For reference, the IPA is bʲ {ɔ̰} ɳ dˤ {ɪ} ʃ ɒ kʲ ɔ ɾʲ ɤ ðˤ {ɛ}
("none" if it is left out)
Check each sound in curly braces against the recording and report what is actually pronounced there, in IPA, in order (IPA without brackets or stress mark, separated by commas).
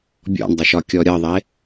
ɔ̰, ɪ, e